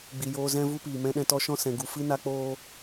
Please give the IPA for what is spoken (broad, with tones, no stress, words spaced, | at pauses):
ɡ͡bi˨joː˧zɛ̃˦ vu˦piː˨ mɛ̃˧ɗɛ̃˧tɔ˧ʃɔ̃˦ sɛ̃˨ɡu˨fɨ˦ na˦k͡poː˦